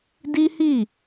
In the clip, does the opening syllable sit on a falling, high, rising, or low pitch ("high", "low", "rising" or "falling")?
high